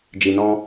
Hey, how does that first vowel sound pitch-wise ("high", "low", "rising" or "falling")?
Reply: low